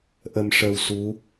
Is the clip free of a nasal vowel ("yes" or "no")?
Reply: yes